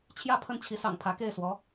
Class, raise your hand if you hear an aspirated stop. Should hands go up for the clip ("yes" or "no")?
yes